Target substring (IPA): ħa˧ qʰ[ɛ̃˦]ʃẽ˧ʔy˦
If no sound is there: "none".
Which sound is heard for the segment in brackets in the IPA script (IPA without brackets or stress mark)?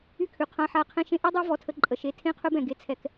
ɛ̃˧